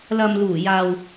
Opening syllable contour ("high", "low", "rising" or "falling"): low